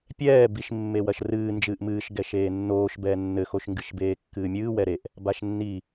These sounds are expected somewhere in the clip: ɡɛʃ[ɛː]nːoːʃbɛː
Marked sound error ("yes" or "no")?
yes